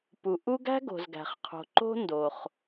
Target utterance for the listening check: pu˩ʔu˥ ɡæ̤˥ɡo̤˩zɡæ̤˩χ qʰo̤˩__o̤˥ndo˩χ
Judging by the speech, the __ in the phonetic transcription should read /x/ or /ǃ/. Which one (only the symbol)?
ǃ